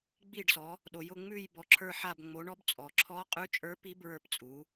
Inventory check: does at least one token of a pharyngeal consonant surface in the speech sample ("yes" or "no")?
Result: yes